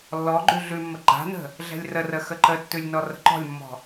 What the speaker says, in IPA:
lː ɔ ɡ͡ǃ ʉ ɮ ʉ mː ə ɡ͡ǃ a̤ n ə̤ | ɮ ɛ̤ lʲ r ə r ə x ə ǃ ə tː ʉ lʲ n ɔ r ə̤ ǃ ɔ̤ lʲ mː ɔ̤

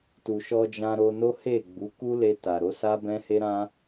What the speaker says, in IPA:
t u˨ ʃ ɔ˧ d͡ʒ ã˧ ɾ o˧ n o˦ h e˦˨ ɡ͡b u˨˦ k u˦ l e˧ t a˨ ɾ o˨˦ s a˦ b ɛ̃˦ h e˦ ɾ ã˦

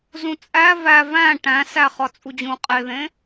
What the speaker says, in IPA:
z ũ t͡sʼ æ v æ v æ̃ ʈ æ̃ s æ χ ɒ t͡sʼ u d͡ʑ ũː qʼ e ð ẽ

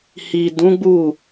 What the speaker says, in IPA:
h i˨ d ũ˨˦ ɡ͡b u˦˨

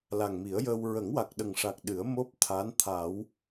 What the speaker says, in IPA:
l a˨˩ ŋ m i˨˩˦ ə̯ j əː˧ w ɹ ə˨˩˦ ŋ w a˨˩ k̚ ɗ ə˨˩ ŋ ʂ a˨˩ k̚ ɗ ɨ˨˩˦ ə̯ m o˦˥ p̚ t̪ʰ a˧˥ n t̪ʰ a˨˩˦ w

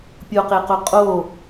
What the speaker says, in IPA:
pʲ o q e q o qʼ o

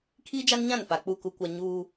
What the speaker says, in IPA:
kʰ iː˦ d͡ʒ a˦ n ɲ ã˦˨ n f a˨ k͡p u˦˨ k u˦ kʷ a˦ ɲ uː˦

